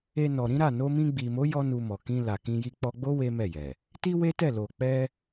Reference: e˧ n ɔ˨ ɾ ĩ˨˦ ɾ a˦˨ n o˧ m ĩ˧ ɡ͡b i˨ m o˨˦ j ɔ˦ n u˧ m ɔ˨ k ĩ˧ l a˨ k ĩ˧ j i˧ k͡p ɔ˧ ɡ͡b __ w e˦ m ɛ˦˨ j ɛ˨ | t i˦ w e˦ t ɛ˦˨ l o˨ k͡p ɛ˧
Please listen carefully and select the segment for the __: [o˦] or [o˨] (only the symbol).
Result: o˦